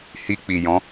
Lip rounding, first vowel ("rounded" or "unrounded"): unrounded